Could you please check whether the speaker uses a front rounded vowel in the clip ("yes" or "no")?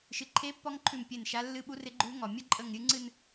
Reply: no